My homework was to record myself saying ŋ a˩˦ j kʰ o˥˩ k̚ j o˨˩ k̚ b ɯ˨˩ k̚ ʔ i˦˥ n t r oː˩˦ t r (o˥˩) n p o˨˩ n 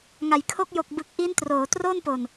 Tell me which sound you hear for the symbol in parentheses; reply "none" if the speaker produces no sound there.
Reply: o˥˩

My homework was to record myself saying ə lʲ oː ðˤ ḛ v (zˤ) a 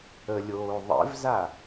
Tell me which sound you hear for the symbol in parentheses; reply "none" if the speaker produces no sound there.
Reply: z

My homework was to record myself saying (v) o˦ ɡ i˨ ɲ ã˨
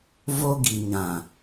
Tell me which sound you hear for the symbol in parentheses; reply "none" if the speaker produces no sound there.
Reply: v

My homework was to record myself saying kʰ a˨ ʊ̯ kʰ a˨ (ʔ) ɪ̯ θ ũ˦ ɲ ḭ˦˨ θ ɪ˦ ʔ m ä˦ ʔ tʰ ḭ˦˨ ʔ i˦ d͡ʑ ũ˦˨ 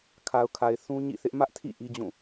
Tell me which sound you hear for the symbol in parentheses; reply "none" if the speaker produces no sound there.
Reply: none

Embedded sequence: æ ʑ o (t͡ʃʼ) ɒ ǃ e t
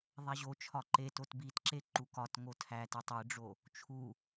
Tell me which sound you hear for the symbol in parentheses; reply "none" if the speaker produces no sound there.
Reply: t͡ʃʰ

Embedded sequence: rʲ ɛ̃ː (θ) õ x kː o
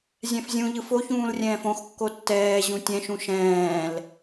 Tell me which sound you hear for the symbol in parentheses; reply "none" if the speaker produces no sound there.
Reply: f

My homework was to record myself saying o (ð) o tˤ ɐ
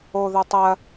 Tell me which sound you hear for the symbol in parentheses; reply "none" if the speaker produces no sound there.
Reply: ð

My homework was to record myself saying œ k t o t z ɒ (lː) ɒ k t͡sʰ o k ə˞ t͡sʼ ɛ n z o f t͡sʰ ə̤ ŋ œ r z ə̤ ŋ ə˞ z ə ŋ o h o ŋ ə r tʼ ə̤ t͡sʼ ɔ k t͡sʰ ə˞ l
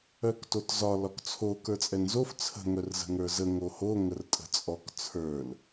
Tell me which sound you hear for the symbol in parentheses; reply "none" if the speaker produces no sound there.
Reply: l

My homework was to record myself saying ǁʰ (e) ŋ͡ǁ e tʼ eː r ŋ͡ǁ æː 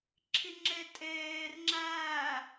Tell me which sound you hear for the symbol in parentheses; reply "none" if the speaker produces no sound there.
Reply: i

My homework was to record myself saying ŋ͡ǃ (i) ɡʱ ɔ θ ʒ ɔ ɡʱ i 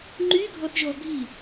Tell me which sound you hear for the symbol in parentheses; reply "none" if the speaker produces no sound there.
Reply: y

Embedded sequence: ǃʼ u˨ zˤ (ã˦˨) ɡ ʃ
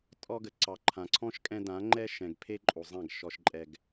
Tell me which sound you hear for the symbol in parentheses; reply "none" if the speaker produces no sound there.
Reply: ã˦˨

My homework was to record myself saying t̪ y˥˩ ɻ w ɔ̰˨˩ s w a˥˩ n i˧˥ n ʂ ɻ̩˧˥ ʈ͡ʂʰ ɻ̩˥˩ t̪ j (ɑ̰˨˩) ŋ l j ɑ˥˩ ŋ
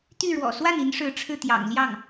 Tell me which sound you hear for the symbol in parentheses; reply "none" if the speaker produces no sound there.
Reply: ɑ̰˨˩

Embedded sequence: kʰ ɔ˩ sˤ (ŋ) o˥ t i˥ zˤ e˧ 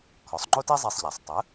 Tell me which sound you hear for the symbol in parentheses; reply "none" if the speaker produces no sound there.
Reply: ŋ͡ǃ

